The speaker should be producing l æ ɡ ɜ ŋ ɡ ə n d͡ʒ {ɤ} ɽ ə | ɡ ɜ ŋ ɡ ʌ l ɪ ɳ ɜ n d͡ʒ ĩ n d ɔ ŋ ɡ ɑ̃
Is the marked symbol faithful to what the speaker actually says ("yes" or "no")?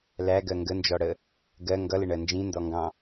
no